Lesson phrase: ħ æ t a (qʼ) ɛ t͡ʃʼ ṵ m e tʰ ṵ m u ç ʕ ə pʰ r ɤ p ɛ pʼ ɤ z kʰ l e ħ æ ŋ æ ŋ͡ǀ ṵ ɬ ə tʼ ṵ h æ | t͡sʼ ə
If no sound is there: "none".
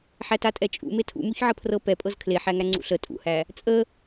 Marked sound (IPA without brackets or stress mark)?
tʼ